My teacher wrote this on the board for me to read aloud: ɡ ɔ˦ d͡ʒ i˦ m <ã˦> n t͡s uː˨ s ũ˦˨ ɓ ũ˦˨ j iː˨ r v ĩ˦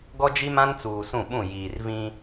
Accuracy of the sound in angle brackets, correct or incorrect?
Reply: correct